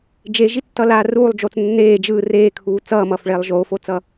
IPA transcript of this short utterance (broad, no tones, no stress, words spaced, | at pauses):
d͡ʒeʒitːʌlaː ruːlˠd͡ʒoːt͡s nːeː d͡ʒɯː reːkʰuː t͡sʌːmʌːfɭeːlˠ ʒoːfot͡sʌ